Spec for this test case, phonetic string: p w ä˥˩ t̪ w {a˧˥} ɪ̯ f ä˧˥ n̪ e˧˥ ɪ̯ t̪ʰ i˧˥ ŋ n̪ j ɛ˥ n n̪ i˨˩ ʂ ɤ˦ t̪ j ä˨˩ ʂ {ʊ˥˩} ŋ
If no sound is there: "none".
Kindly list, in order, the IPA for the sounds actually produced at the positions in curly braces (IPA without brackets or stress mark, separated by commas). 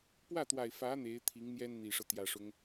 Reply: a˨˩, ʊ˦